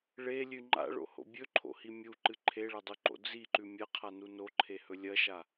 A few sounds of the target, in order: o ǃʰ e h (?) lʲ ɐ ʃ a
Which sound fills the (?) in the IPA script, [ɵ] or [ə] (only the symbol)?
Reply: ɵ